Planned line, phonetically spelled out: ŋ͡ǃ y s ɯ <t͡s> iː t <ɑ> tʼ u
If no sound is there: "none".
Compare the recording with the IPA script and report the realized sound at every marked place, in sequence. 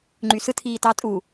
tʰ, ɑ

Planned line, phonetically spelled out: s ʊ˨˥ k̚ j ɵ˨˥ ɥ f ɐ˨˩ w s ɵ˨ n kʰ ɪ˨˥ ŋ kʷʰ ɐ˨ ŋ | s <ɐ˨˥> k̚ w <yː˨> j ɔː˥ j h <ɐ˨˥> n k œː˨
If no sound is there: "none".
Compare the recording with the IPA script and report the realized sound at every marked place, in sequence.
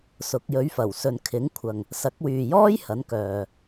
ɐ˨˥, yː˨, ɐ˨˥

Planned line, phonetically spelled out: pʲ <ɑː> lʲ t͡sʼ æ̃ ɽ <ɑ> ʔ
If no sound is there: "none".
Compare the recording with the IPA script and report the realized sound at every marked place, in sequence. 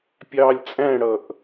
ɑː, ʌ

